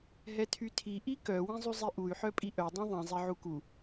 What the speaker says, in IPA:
ɦ ɛ tʰ y tʰ i ʔ i k œ w ĩ zˤ y zˤ i ʔ u y̯ ħ œ pʼ i ʔ œ dˤ ĩ ðˤ ĩ zˤ e ʕ u k u

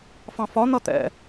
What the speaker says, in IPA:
f ɑ̃ f ɒ n̪ ʌ t̪ ɛ̰

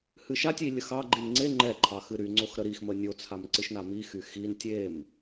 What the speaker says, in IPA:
h ɨ ʃ a tʲ i lʲ ə x ɑ ɡ͡ǃ i n ŋ͡ǀ e ŋ͡ǃ ɛ ǃʰ ɑ x ɨ ɾ y ŋ͡ǀ o x ɾ ə ɾ i x m ə nʲ o t͡sʰ a m ǀ ɨ ʃ n a m i x y x i n tʲ e m

